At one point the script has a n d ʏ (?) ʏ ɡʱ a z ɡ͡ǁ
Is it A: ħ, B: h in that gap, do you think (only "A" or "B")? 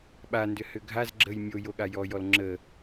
B